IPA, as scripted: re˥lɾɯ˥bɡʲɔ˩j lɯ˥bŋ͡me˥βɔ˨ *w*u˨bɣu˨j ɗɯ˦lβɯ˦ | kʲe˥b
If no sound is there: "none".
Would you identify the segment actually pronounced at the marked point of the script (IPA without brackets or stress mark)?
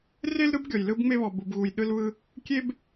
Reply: b